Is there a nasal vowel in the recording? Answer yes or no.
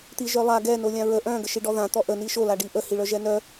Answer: yes